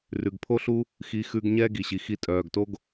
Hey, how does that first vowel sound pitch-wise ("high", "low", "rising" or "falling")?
low